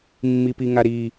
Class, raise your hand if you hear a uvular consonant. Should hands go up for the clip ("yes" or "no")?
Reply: no